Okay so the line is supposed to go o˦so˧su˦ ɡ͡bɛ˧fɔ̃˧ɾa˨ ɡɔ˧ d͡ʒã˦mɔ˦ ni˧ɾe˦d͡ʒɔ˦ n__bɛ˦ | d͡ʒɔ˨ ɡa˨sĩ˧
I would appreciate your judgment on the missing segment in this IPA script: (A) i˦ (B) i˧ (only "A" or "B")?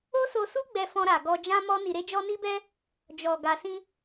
A